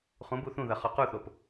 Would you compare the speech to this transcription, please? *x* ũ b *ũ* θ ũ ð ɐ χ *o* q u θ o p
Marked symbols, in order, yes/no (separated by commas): no, no, no